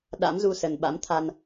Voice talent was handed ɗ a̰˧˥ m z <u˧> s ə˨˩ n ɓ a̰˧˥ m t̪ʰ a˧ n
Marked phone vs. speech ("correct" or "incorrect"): correct